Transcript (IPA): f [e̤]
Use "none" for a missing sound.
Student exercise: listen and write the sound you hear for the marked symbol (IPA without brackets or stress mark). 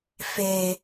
e